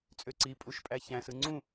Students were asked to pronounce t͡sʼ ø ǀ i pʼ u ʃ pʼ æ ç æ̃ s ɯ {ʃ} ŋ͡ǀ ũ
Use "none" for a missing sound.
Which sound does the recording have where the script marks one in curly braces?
none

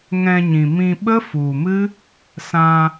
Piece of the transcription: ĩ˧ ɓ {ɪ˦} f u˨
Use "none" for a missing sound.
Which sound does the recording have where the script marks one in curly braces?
ə˦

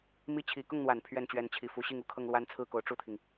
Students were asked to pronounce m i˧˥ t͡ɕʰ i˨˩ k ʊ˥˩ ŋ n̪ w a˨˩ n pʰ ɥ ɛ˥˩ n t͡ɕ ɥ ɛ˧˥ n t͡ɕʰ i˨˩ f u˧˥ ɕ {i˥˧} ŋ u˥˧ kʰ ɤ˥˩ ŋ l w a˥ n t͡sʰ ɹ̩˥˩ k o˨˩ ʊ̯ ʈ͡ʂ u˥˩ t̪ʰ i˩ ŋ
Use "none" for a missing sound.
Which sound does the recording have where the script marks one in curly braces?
i˥˧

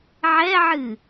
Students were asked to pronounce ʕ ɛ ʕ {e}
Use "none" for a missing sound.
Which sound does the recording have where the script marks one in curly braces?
ɨ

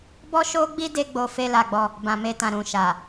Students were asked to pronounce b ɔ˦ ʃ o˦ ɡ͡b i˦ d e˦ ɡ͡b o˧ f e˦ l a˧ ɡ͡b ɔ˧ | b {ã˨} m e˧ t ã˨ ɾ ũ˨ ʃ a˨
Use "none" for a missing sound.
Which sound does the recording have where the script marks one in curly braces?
ã˨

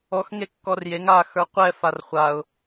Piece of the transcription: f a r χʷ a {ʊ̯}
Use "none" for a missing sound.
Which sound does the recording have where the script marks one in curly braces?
ʊ̯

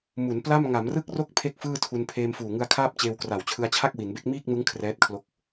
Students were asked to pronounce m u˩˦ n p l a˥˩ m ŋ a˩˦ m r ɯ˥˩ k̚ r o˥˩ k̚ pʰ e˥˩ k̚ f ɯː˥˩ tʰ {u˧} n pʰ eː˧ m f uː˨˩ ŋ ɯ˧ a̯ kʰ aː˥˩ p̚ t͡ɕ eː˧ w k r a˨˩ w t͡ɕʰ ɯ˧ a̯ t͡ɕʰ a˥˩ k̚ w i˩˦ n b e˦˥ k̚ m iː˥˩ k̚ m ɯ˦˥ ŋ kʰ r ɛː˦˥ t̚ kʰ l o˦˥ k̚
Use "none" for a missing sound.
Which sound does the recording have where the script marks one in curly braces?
u˧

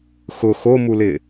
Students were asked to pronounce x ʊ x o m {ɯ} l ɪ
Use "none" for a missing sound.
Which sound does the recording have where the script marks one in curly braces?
u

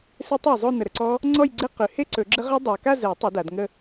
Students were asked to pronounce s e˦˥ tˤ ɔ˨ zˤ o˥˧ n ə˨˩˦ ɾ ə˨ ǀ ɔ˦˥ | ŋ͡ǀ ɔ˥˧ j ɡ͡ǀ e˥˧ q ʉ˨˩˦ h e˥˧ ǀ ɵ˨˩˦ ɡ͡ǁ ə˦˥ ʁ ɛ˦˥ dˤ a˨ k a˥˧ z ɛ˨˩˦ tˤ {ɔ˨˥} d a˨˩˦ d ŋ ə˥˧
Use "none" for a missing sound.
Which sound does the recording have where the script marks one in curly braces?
ɵ˨˥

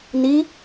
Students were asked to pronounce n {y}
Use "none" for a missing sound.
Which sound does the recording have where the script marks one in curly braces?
i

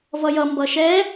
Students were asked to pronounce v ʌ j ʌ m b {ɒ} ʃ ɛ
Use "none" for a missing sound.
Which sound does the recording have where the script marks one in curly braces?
ʌ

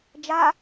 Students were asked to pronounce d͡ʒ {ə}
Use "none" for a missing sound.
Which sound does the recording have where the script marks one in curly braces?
a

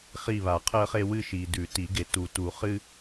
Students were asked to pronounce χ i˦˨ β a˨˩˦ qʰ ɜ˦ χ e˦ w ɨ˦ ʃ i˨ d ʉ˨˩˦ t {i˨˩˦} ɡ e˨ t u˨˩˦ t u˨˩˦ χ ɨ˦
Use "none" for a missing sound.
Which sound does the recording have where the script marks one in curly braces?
i˨˩˦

